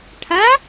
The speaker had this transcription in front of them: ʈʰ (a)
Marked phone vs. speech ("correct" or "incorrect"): correct